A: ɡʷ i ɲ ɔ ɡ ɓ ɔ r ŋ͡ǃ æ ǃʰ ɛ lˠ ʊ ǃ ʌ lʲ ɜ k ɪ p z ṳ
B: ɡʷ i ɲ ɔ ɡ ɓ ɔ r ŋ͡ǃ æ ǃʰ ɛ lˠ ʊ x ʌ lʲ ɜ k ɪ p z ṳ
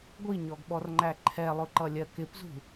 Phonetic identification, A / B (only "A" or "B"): A